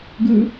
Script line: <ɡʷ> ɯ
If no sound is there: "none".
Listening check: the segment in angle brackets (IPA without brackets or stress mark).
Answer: ɡ